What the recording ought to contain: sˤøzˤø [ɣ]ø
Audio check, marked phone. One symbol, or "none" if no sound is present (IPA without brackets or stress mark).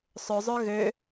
ɣ